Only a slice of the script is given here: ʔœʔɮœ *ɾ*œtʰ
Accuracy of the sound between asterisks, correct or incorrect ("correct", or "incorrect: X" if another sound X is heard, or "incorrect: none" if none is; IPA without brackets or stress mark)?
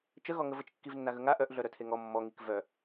correct